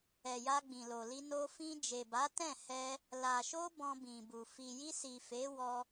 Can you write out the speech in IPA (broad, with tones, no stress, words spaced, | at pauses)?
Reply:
ɛ˨ja˧ ɡ͡bĩ˨lo˨li˧ no˧fĩ˧ d͡ʒe˨ba˨˦ tɛ̃˦˨hɛ˧ | la˨ʃo˧ bɔ̃˧bĩ˨bu˨ fi˨ji˧si˨ fe˨˦ wɔ˦